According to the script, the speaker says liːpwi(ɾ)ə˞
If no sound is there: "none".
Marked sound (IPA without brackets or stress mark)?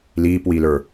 l